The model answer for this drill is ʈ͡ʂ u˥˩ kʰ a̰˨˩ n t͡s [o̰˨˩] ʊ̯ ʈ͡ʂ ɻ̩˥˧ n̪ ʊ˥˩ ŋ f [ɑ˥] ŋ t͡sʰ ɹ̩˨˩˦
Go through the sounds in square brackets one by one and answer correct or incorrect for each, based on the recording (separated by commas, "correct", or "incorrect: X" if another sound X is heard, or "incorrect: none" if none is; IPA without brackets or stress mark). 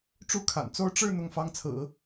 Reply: incorrect: o˥, correct